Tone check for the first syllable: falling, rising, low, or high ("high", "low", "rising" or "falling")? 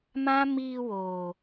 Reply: high